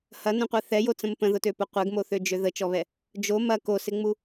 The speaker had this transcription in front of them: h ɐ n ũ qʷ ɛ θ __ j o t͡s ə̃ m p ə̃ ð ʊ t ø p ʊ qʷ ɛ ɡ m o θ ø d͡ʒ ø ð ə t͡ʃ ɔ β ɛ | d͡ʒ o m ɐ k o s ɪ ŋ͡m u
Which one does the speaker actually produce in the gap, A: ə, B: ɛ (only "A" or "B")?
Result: B